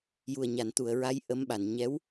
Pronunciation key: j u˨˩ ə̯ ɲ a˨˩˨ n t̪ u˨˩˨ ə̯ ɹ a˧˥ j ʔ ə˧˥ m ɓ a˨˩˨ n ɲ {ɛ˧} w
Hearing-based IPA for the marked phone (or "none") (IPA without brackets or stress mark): ɛ˧˥